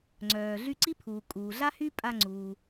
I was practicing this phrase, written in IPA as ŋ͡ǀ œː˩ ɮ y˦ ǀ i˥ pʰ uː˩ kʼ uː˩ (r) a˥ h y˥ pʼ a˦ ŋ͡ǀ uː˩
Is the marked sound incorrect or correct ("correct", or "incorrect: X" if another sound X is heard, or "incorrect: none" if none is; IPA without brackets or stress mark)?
incorrect: ɮ